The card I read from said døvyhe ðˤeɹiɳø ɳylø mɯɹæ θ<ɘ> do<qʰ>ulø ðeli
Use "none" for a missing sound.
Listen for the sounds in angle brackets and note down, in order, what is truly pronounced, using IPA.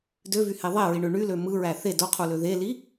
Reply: e, qʰ

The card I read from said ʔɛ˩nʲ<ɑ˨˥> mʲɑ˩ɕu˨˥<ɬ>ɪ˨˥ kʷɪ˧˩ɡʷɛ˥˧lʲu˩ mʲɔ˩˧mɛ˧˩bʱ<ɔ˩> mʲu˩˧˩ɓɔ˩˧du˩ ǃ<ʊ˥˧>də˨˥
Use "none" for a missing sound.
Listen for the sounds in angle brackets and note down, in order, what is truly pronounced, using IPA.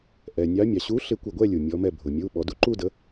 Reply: ɑ˨˥, ɬ, ʊ˩, u˥˧

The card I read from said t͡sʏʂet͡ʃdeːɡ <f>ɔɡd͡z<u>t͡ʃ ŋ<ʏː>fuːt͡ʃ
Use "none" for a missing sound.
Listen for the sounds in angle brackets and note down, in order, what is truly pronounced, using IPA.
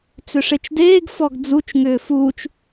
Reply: f, u, ʏː

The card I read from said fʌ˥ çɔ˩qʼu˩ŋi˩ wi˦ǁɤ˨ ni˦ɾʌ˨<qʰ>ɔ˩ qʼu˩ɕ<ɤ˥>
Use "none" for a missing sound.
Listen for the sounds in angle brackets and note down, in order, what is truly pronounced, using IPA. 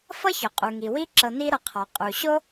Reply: qʰ, o˥

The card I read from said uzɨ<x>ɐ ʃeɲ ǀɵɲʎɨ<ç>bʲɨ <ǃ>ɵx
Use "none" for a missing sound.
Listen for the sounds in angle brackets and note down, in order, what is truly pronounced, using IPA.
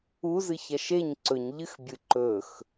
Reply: ç, x, ǃ

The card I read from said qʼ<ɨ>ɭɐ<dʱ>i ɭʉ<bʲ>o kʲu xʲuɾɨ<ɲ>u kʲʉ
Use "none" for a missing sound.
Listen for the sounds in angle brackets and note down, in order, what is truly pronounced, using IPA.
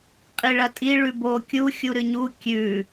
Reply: i, tʼ, b, ɲ

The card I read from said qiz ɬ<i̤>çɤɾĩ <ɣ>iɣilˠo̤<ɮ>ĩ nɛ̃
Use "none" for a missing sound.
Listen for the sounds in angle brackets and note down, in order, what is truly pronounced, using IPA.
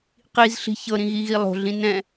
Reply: i̤, ɣ, ɮ

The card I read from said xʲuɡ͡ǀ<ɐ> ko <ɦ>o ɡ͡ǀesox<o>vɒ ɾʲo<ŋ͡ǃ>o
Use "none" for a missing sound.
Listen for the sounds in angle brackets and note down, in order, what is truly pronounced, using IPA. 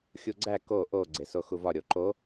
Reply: æ, ʔ, u, ǃ

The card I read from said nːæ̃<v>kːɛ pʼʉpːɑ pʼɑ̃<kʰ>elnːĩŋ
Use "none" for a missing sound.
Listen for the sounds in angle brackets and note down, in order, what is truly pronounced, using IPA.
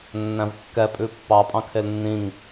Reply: v, kʰ

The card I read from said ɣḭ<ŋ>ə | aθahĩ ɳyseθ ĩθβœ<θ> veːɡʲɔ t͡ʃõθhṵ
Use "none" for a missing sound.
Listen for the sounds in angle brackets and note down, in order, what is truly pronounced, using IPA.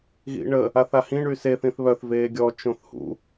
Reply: ɳ, θ

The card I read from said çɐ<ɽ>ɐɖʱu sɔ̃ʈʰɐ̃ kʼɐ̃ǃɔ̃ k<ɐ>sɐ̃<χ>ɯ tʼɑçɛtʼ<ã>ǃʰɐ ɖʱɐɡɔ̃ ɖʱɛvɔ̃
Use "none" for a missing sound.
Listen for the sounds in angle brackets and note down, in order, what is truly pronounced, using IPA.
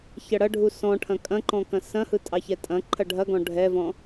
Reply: ɽ, ɐ̃, h, ɐ̃

